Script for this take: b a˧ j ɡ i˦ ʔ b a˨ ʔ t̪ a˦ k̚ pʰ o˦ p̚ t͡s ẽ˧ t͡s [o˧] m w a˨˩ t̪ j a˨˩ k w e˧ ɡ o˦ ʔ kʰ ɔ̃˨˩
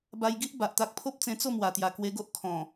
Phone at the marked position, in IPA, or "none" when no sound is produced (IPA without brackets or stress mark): o˥˧